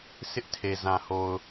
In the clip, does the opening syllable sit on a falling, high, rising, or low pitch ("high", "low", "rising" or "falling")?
high